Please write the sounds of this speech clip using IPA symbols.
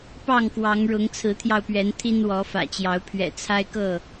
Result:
pɑ˥˨ŋkwɑ˨˦ŋɻʊ˨˦ŋ t͡sʰɹ̩˨˦t̪ʰjɑ˧ʊ̯pɥɛ˨˦n t̪ʰi˦nwɔ˨˦fä̰˨˩t͡ɕjɑ˨˦ʊ̯ pʰɥɛ̰˨˩t͡sʰa˦ɪ̯kɤ˥˨

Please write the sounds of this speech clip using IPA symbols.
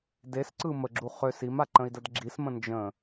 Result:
desǀɯ məɡ͡ǁu χøs imaǃə̃i̯dəd ɡ͡ǁismə̃ nd͡ʒə̃

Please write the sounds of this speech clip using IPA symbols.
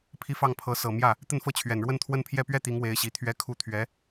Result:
pʰi˥˧fɑ˥˩ŋ pʰɤ˧˥sɤ˨˩ mjä˥˩ | t̪ə˥˧nfɤ˥˩t͡ɕʰɥɛ˨˩n ɻwə˥˧nt̪ʰwə˥˧npʰjɛ˥˧ pɥɛ˥˩ t̪i˧˥ŋ we˧˥ɪ̯ɕi˨˩t̪ʰɥɛ˥ kʰu˥ t̪ʰɥɛ˧˥

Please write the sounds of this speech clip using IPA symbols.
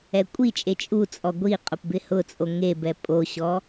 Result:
ɛkʷʼit͡ʃʼe t͡ʃʼut͡sʼɔ ɡʷi qʼʊpbɪhʊt͡sʼo ŋebɛ pʼoɕɔ

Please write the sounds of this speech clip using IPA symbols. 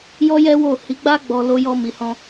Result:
jɔ˦jɛ˦wo˦˨ hi˨˦ɡ͡ba˦ ɡ͡bɔ˧ lo˦jɔ˦mi˧hɔ̃˦

